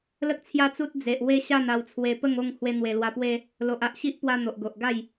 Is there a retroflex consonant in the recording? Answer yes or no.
no